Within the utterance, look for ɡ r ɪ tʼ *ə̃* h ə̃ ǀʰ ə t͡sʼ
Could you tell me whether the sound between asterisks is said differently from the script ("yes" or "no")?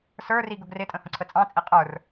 no